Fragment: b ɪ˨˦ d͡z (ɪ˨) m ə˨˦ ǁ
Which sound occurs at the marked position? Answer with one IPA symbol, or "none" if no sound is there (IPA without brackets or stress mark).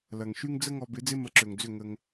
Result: ɪ˦